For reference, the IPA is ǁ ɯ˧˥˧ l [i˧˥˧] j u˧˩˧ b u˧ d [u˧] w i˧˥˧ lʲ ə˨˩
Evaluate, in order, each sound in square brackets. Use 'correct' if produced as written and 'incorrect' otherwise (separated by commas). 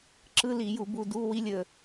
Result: incorrect, incorrect